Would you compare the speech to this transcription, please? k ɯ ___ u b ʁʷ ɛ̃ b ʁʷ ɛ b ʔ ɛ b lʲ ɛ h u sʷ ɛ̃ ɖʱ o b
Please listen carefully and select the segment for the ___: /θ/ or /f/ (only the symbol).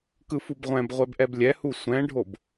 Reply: f